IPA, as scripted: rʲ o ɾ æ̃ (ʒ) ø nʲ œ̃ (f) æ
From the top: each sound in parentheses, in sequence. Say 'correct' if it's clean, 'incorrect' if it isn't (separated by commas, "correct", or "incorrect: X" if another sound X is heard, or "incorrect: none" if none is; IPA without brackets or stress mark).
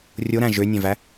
correct, incorrect: v